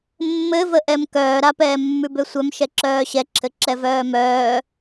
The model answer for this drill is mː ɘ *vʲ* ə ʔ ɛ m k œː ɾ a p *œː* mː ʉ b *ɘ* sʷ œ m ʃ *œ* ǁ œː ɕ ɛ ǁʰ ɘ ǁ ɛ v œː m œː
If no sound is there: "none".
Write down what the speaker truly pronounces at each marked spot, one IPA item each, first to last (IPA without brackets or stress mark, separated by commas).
v, ɛː, ø, ɛ